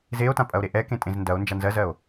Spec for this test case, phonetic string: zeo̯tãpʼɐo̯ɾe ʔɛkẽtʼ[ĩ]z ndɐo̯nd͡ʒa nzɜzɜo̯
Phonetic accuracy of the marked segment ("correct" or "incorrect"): incorrect